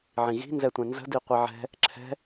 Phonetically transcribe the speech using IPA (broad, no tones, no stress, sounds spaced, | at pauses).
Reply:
ʕ ĩ ɣ i̤ n z ɛ tʷ ɛ̃ n z ə̤ d i qʷ i ʕ ɛ̤ | ǁʰ ɛ̤